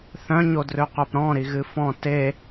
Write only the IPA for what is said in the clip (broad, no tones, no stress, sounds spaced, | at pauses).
θ œ̃ ɲ o d r ø q œ p ɾ ɔ̃ ɾ i ɣ ɨ f ɔ̃ t e